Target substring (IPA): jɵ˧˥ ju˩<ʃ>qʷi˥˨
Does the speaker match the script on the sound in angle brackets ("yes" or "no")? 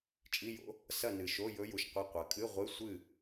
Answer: yes